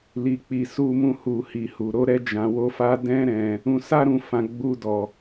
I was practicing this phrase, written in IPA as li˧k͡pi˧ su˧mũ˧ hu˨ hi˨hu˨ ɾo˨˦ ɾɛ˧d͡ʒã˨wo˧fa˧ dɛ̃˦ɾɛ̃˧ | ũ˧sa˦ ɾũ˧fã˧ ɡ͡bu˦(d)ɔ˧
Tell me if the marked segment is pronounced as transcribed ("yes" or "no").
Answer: yes